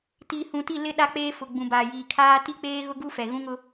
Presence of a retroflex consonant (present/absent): absent